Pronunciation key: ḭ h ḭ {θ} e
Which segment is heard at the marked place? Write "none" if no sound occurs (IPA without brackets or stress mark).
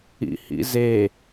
z